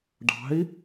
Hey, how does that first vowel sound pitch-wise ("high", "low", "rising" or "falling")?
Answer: rising